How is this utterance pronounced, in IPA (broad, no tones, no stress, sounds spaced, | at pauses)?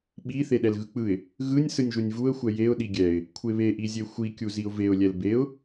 ɓ i θ e ɗ ɛ l ɣ ɯ k͡p ɯ ɪ̯ | ɣ ɯ nʲ s ɯ nʲ ʒ u nʲ v u ə̯ xʷ ɛ j e ʊ̯ ɗ i ɡʲ ɛ ɪ̯ | kʷʰ e β e ʔ i zʲ e xʷ i kʲ u z i ʊ̯ v e ʊ̯ lʲ ɛ l b e ʊ̯